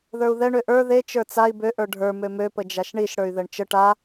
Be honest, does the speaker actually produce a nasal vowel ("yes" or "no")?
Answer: no